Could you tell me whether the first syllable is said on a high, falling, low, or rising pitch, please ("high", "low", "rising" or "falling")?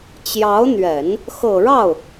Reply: rising